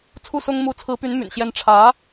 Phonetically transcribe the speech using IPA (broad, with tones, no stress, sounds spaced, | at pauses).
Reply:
t͡sʰ u˥˩ s ʊ˥ ŋ m u˧˥ t͡sʰ ɹ̩˧˥ p y˧˥ n m y̰˨˩ n ɕ j ɛ˥ n ʈ͡ʂʰ ä˧˥